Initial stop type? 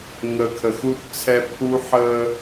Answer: aspirated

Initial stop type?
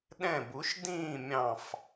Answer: implosive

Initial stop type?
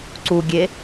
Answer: click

